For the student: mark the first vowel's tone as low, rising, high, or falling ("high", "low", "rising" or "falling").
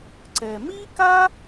low